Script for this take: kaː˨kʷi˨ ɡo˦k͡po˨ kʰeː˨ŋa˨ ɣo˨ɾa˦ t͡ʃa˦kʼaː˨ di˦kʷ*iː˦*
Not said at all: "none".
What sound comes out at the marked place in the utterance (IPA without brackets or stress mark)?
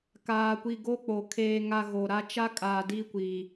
iː˨